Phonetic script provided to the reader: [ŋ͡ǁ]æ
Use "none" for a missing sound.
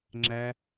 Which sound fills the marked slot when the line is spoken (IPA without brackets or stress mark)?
ŋ͡ǁ